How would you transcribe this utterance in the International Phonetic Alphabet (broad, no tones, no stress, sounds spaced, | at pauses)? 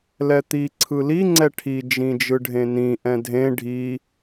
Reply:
l ɛ t̪ i ǀʰ ɯ l i ŋ͡ǀ ɛ ʈʰ i d͡ʒ ĩ d͡ʒ ɯ ɖʱ ẽ n ĩ ʔ ɛ̃ dʱ ẽ ɖʱ i